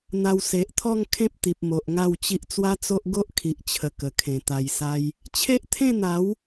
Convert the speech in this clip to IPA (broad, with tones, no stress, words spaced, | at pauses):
n̪a˧w se˨ʔt̪ʰɔ˥˧ŋ kʰẽ˦p̚t̪i˨p̚ mo˨ʔŋa˥˧wt͡ɕi˦ʔ t͡swa˦t͡so˦ʔ ɡo˦ʔkʰi˨ʔt͡ɕʰə˨˩ kə˨˩kʰẽ˨˩ t̪a˨˩jsa˧j | t͡ɕʰe˦ʔt̪ʰẽ˥˧n̪a˨˦w